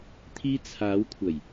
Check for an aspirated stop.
present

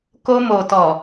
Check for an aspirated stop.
absent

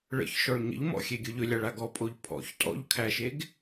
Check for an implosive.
absent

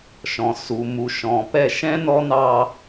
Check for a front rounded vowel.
absent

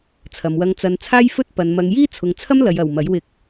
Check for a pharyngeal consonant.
absent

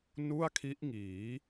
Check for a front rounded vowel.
absent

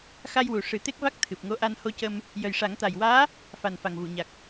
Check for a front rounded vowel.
absent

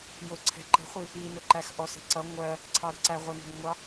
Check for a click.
present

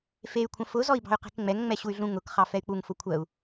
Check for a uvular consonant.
present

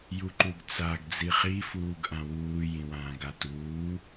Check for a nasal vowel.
present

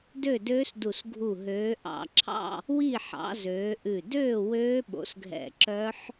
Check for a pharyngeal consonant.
present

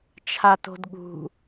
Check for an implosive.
present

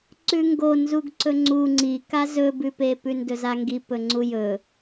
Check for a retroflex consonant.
absent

